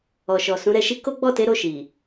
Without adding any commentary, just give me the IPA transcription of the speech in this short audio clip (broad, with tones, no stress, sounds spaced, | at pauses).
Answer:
ɔ˨ ʃ ɔ˨ s ũ˨˦ ɾ ɛ˧ ʃ i˦ k o˦ ɡ͡b ɔ˦˨ t e˨˦ ɾ o˦˨ ʃ i˨